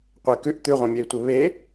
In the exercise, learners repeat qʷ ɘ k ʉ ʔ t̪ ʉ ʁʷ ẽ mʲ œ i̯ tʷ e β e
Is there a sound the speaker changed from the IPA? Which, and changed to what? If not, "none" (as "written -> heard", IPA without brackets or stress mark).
none